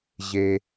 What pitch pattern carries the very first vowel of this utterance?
low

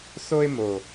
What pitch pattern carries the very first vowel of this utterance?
high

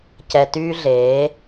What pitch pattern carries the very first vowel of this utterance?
low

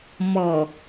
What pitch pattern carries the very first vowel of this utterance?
low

